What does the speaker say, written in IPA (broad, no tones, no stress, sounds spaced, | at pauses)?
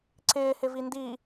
ǀ ɪː h ɪ v i n d i